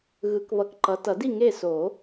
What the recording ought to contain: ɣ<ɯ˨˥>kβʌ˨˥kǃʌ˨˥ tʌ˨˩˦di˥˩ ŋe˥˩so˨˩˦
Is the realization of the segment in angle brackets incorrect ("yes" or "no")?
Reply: no